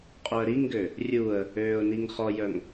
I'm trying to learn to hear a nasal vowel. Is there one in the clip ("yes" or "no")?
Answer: no